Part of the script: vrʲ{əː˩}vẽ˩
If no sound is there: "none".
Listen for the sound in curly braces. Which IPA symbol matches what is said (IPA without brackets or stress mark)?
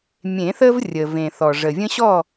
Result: əː˩